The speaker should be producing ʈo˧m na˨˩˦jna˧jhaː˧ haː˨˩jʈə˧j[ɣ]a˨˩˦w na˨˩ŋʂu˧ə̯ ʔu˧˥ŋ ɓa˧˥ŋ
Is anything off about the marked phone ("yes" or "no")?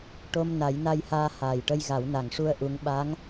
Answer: no